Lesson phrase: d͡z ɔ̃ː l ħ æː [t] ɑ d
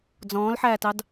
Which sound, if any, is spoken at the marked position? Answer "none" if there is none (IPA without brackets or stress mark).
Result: t